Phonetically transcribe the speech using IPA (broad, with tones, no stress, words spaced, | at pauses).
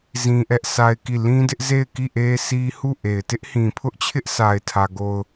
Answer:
zĩ˦ʔɛ˦ʔsʰa˦ɪ̯ki˦˨ lĩ˦dɪ˦ʔze˦˨ɪ̯ki˦˨ ʔe˦sʰi˦ hu˦˨ʔe˨ɪ̯ tɪ˦ʔhĩ˨pʰʊ˦ʔt͡ɕʰɪ˦ʔ sa˦ɪ̯tʰä˦ɡo˦ʊ̯